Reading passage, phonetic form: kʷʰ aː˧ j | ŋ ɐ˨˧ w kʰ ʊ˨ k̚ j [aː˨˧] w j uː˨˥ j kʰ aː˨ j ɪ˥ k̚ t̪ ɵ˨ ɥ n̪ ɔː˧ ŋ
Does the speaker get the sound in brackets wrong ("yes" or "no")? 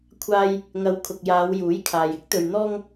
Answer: no